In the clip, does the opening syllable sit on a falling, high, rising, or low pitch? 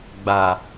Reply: low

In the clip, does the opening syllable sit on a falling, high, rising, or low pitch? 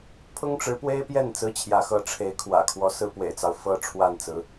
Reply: high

